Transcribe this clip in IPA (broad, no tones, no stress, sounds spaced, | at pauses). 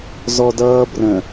z ɔ d ʌː b r ə̃